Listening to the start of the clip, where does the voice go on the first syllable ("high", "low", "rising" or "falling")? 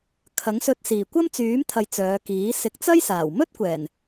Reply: rising